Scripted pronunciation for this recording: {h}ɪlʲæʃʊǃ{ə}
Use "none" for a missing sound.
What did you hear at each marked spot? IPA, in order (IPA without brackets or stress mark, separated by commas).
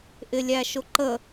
ʔ, ə